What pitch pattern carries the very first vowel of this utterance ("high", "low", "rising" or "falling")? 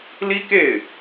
high